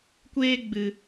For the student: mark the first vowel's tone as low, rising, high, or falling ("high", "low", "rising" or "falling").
high